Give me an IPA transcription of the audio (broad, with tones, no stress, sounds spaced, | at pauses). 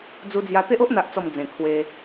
d͡z u˧ d͡z j a˧ t̪ e˦ ʔ o˦ ʔ n̪ a˨ ʔ t͡s ɔ˨˩ m d͡z ẽ˨˩ kʰ w e˧